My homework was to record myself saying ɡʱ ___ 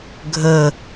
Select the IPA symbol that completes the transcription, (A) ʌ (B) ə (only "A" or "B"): B